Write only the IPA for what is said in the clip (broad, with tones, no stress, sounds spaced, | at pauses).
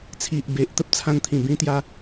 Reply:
t͡sʰ i˨ ʔ b e˨ ʔ t̪ ə˦ p̚ t͡sʰ ã˧ n t̪ʰ ĩ˨˩ b ĩ˦ t̪ j a˦